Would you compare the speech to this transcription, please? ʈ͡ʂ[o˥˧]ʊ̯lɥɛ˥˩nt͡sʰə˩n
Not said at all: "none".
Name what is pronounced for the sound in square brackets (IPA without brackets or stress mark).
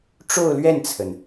o˥˧